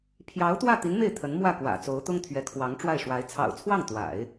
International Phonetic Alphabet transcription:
pʰ j ɑ˧˥ ʊ̯ t̪ w ä˥˩ t̪ i˧˥ n m e˥˩ ɪ̯ t̪ʰ ə˧˥ n m w ä˥˩ k w ä̰˨˩ t͡s o˧˥ ʊ̯ t̪ ʊ˥ ŋ t̪ʰ ɥ ɛ˧˥ kʰ w ɑ˧˥ ŋ ʈ͡ʂ w a˥˩ ɪ̯ ʂ w a˧˥ ɪ̯ t͡sʰ ɑ̰˨˩ ʊ̯ t͡sʰ w ɑ˥˩ ŋ t̪ w a̰˨˩˦ ɪ̯

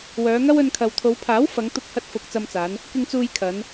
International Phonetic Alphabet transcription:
w œː˨˧ ŋ ɐ˥ w ɵ˧ n kʰ ɐ˨ w t̪ʰ o˨˧ w pʰ aː˨˥ w f ɐ˨˧ ŋ t̪ ʊ˧ k̚ h ɐ˧ t̚ f ʊ˨ k̚ t͡s ɐ˧ m t͡s aː˨˧ n | k ɪ˧ ŋ t͡s uː˧ j kʰ ɐ˨˧ n

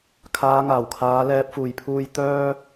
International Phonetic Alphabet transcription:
kʰ aː˨˧ ŋ aː˨˩ w kʰ aː˨˧ l ɛː˨ p̚ f uː˨˩ j pʰ uː˧ j t̪ œː˥

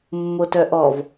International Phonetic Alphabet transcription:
mː o t œ ʔ ɔ v

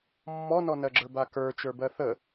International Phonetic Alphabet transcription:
mː ɔ n ɔ n ɜ ɡ͡ǁ ə˞ b a k ə˞ t͡ʃ ə˞ b ɜ θ ə

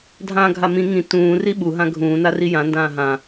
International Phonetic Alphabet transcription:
dʱ ãː ɡʱ a m ĩ ŋ ĩ t ũː r i ɓ u ɦ ã ɡʱ ũː n a r i j ã n d ãː ɦ ã

